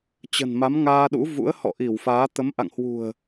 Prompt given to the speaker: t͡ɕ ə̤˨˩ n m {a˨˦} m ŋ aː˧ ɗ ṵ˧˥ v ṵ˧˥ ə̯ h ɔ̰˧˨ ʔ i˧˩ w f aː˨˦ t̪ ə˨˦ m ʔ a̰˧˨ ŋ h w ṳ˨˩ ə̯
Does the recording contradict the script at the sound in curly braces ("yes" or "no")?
no